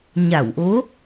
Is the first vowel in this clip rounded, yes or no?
no